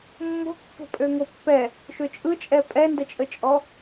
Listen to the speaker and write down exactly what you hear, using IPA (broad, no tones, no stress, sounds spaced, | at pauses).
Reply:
mː o̤ kː ə̤ pʼ ø ŋ o pː ɛ | ʃ ø t͡ʃʼ ɯ t͡ʃʼ ɛ pʼ ɛ n d ə t͡ʃʼ ə t͡ʃʼ ɔ